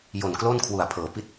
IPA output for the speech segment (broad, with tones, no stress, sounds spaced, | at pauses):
j o˨˩ n k l o˥˩ n kʰ w u˨˩ a̯ pʰ ɤː˩˦ p i˦˥ t̚